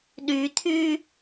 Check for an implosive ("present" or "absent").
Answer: present